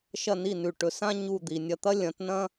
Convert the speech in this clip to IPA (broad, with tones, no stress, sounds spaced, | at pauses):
ʃ ɐ˥˩ n i˥˩ n ʉ˩ ʈ ɵ˩˥ s ã˥ ɲ u˥˩ d̪ i˩ nʲ ɐ˧ t̪ ɐ˥ lʲ ɐ̃˩˥ t n ɐ̃˥